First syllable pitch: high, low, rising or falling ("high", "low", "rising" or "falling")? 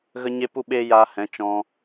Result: high